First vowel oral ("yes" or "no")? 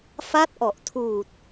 yes